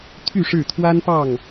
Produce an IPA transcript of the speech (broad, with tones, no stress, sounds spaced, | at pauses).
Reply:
t̪ʰ y˥˨ ʂ ɻ̩˥˨ t̪ʰ w a˦ n p ɑ˥˨ ŋ